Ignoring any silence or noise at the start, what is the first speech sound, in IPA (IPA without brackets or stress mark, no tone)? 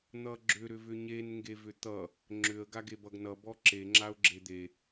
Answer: n̪